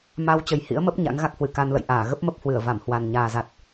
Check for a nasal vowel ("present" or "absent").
absent